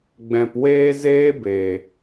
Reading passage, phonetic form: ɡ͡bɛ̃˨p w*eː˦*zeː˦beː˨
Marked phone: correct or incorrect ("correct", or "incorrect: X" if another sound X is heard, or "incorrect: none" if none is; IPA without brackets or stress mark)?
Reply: correct